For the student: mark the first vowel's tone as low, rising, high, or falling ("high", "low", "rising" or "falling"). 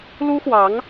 high